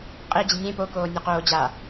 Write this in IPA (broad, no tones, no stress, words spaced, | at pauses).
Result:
qʼed͡ʑɪ nʲẽ pokoː nʲoqoː d͡ʑa